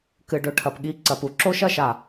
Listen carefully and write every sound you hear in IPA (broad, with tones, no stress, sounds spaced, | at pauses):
k ɨ˨ ɖ ɵ˧ ʈʰ ɐ˨ p ɠ i˧ ǀ ɐ˨ p u˦ ǁ o˦ ʃ ɐ˧ ʃ a˨